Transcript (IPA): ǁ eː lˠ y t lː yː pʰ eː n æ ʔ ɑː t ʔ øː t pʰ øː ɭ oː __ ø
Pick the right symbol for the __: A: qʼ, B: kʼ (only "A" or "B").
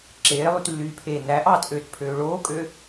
B